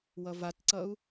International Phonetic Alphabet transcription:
wʌvatǀʌu̯

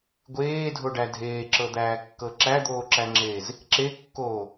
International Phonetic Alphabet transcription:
ɡʷeːdʱoɖæ dʱeːǁɤd̪æːkːɤ ǁæd̪oːǁæŋ͡ǁeːz | ǁekːoː

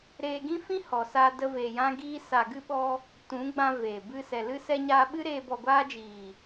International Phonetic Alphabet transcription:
ɾeː˧ɡĩ˦fĩ˦ hɔ˨saː˧də˧ veː˨jã˧ɡiː˧ sa˨ɡɨ˧ɓɔ˧ | tũ˨˦ɡ͡bã˧veː˨bɨ˧ sɛ˨lɨ˧sɛ˧ ɲaː˧ɓɨ˦ɾeː˧ bɔ˨ɡʷaː˧d͡ʒiː˨

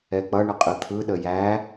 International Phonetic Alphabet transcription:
ɛk͡pʌɳə qʼɯt̪ʰɯɗə jæ

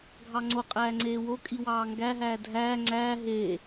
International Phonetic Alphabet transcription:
ɡʱɑŋ͡ǀoqʼæː ŋ͡ǀeːwokʼi wɑːŋɡæɦæː dʱæː ŋ͡ǀæː ɦe

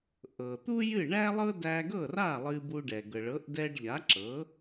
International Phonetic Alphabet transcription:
ʔɤ˩ t̪u˥jɨ˥˩ ɳæ˥lˠɤ˥ dæ˧ɡɤ˥˩ra˥˩ lˠɨ˧bu˧ɖɛ˩ ɡɤ˩ɭɤ˩˥ʔ dɛ˧ɖ ʎa˩˥ǁɤ˩˥

